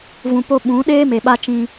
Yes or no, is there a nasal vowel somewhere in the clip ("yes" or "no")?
yes